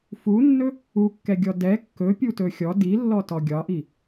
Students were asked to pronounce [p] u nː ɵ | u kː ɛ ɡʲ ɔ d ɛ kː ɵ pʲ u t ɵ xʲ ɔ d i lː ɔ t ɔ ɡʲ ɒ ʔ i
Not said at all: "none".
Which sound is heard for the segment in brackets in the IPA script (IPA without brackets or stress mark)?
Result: f